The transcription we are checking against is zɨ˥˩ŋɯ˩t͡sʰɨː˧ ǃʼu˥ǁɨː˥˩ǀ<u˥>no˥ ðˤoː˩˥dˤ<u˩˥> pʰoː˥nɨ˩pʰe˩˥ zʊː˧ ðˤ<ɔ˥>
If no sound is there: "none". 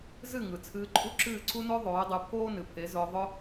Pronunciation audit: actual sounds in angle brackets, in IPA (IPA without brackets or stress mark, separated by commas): u˥, u˩˥, ʊ˥